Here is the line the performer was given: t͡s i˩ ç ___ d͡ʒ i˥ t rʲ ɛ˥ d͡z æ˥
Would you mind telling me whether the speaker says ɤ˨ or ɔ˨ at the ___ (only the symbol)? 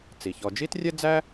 ɔ˨